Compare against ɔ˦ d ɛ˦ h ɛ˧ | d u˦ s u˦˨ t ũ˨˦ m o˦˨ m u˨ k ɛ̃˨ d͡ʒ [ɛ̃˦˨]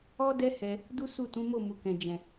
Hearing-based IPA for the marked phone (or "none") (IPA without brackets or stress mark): ɛ̃˨